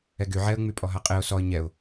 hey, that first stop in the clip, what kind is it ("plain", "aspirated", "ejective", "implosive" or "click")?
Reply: plain